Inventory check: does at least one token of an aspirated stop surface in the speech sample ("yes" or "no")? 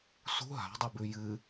no